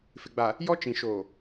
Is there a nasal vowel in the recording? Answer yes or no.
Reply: yes